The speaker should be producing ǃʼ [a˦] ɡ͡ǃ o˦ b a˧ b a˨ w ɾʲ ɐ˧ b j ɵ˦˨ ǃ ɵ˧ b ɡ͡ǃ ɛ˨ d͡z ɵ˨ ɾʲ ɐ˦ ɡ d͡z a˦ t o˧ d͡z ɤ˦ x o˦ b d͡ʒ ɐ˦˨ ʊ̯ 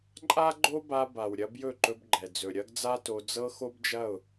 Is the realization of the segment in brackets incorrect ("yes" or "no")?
no